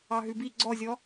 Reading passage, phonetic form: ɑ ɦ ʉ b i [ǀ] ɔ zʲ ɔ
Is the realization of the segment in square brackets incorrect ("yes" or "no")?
yes